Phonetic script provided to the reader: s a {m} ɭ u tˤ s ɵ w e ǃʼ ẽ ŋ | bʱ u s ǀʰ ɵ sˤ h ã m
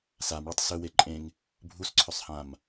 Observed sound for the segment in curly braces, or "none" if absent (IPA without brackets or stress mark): m